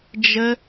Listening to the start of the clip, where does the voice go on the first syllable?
high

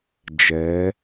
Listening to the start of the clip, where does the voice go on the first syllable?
rising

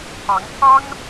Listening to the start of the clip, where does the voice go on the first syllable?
rising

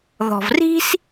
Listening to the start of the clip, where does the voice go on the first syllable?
low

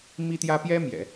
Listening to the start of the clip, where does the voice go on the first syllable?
high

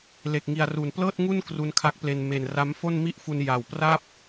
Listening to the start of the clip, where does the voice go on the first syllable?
low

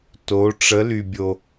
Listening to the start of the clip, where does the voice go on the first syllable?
rising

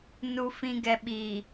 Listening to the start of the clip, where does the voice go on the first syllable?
low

